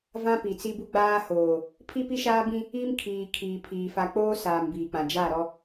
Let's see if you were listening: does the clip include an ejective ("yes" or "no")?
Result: no